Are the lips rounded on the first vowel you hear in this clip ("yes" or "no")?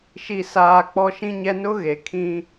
no